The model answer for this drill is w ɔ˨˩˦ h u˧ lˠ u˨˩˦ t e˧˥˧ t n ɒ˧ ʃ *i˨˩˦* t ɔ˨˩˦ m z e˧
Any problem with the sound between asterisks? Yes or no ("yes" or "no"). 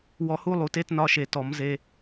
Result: yes